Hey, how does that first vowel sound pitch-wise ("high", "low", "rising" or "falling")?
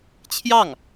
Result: falling